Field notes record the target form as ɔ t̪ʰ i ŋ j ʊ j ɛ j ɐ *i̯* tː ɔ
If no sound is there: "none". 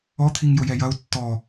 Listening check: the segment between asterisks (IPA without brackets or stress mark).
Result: u̯